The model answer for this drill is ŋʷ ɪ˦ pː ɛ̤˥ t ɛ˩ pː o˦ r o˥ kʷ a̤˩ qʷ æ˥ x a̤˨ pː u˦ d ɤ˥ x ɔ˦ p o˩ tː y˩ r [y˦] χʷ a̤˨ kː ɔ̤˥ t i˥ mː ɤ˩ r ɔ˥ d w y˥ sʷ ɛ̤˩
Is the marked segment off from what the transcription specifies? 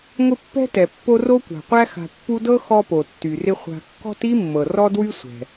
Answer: yes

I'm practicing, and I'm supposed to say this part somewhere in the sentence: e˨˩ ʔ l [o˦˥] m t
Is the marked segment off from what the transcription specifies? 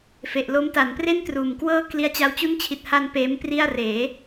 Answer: no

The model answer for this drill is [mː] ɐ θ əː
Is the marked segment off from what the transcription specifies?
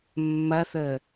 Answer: no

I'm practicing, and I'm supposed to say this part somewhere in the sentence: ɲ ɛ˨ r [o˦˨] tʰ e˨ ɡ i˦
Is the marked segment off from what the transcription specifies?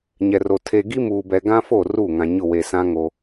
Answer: yes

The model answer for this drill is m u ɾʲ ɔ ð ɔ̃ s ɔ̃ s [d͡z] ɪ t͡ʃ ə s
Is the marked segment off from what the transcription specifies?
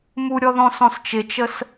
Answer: yes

